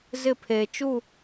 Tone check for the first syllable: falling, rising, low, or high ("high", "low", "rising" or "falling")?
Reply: falling